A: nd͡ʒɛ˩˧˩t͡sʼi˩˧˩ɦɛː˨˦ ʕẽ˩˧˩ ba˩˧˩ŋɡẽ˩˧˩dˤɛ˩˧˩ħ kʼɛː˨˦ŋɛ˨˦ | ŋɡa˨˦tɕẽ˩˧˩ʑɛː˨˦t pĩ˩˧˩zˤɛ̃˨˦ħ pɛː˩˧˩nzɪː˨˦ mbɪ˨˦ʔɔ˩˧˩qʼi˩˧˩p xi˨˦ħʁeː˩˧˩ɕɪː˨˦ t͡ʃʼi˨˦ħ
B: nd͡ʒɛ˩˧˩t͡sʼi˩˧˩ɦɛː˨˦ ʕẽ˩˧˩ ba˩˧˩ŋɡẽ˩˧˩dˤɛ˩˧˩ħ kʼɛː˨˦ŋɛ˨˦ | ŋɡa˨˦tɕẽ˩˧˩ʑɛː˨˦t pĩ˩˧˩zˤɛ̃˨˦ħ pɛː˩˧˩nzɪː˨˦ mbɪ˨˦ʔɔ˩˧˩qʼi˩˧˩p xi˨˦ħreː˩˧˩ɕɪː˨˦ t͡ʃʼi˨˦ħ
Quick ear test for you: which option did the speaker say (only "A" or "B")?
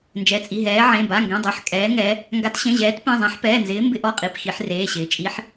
B